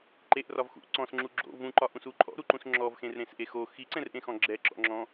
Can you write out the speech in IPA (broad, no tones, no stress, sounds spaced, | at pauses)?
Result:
ǃ e ʔ r ɒ v x ṵ ʔ ǀ ɔ̃ s ŋ͡ǁ u ɡ͡ǁ o̰ v ũ ǃ ɒ ʔ ũ s u ǃʼ ɔ̰ ɾ u ǃ ũ s ŋ͡ǁ ɔ v x ẽ r ɾ ẽ s ʔ e x o x i ǀ ɛ̃ r ʔ ẽ x ɔ̃ ɡ͡ǁ ɛ ǁ ɔ̰ ŋ͡ǁ ɔ̃